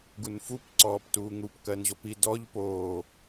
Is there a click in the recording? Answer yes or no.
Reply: yes